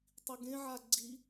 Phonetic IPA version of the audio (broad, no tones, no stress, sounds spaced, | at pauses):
tˤ i ɡ ẽ ʕ a ɡ͡ǀ i